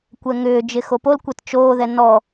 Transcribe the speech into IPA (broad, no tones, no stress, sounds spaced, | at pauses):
kʷ ɛ ŋ ʏː d͡ʒ ɪ x o p o l kʷ ɛ t t͡ʃ oː ð ɛ n ɔ